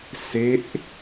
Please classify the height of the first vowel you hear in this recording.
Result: mid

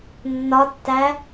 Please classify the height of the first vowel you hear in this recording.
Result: low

